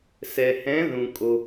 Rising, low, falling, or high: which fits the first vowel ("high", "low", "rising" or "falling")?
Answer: low